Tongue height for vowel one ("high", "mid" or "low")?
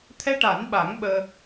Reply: mid